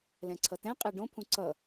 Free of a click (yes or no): no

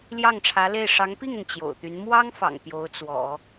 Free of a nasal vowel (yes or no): yes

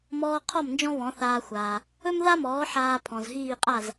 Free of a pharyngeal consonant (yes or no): no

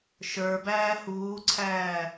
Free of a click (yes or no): no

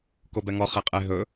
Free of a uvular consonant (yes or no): no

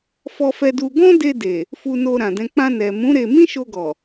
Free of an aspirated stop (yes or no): yes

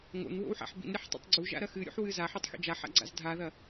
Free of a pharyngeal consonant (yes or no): no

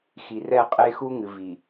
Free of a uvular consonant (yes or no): no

